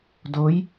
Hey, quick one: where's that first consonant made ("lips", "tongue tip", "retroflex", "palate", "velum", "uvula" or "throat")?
tongue tip